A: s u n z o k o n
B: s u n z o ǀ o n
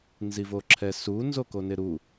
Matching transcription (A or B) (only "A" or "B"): A